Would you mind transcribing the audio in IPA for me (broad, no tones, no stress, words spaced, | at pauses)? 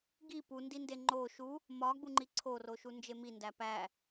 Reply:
ɡi pundinde ŋ͡ǃo ʃu | mɒɡ͡buŋ͡ǃi ǀʰoroʃu nd͡ʒemi ndæpæ